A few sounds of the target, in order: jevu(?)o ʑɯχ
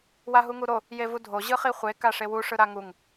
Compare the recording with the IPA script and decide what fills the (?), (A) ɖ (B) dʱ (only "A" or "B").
B